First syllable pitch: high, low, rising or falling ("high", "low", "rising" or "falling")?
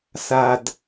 low